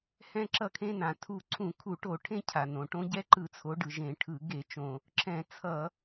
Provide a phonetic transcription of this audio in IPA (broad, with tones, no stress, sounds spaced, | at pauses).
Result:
h ɛ̃˦ ǁ ʌ˦˨ kʰ ẽ˦ n ã˩ tʰ u˦˨ ǀʰ ũ˧˩˧ kʰ u˧˩˧ ʈ o˧˩˧ ʈʰ ẽ˦ cʰ a˩ n õ˩ ʈ õ˦ ɟ ɛ˦ ǃ ɯ˧˩˧ t͡sʰ o˩˧ ɖ ɯ˩ ʒ ẽ˧˩˧ ʈʰ ɯ˧˩˧ ɡ e˧˩˧ t͡ʃ õ˩ | ǁ ɛ̃˧˩˧ t͡sʰ ʌ˧˩˧